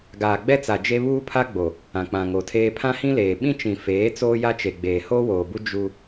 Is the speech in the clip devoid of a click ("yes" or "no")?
yes